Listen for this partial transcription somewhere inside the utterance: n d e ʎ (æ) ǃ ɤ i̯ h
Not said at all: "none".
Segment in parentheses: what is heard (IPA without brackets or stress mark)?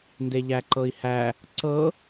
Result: æ